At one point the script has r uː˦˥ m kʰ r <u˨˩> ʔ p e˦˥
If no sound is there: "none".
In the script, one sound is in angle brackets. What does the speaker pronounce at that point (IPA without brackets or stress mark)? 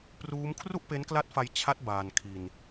u˥˩